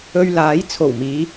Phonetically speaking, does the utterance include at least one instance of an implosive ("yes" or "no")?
no